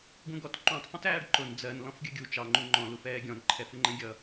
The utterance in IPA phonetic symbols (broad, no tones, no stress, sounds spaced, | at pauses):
ɡ ũ ɡ ɔ t ǃ ũ tˤ f ũ t æː ɖ ǃ ʊ n d͡z ɜ n l ɔ̃ f ɡʲ ə ɡʲ u t͡ʃ ɑ ŋ͡ǃ u ŋ͡ǃ ɔ̃ l u f ɛː ɡʲ ɔ̃ n ǃʰ ɛ f ɪ ŋ͡ǃ ɛ̃ ɡʲ ʌ